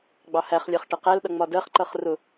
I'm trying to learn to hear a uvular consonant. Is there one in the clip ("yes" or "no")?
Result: yes